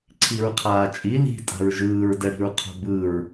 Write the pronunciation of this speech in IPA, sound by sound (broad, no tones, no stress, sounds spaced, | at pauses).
ǀʰ i ɹ qʰ aː t͡ʃʼ i l i̤ tʼ a̤ ɹ ʒ ɯː ɹ d ɛ ɽ i̤ ɹ qʰ o̤ b ɯ ɹ